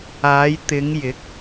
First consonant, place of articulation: palatal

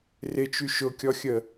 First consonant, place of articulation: alveolar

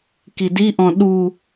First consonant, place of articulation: velar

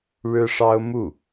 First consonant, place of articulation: retroflex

